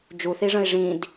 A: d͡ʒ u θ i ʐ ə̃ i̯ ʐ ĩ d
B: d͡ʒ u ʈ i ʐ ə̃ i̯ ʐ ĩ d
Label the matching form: A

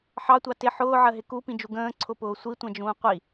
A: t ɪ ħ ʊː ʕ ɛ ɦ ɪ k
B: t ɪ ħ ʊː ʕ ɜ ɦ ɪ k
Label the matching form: B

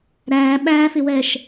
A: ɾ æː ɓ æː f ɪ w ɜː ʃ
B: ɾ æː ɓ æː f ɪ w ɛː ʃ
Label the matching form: B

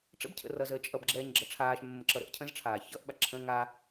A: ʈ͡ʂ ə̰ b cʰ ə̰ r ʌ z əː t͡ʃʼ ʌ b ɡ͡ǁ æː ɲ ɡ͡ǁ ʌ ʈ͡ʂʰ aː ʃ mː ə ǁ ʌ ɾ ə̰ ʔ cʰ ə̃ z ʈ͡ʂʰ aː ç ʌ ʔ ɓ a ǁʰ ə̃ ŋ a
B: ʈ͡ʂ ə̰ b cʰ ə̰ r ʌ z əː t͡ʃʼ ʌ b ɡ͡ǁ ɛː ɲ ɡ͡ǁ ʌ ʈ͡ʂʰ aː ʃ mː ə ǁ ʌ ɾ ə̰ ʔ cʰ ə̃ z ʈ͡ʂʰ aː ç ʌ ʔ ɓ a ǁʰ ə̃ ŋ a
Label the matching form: B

